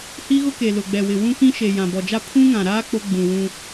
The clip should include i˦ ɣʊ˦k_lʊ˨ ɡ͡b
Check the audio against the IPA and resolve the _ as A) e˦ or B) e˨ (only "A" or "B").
B